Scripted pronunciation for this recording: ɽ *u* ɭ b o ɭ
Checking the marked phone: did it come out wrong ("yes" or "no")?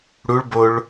no